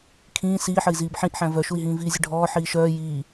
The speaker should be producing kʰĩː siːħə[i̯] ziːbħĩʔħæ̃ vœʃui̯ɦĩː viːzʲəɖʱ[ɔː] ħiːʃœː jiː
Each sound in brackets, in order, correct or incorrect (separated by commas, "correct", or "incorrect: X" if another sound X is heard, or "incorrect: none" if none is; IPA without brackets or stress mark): correct, correct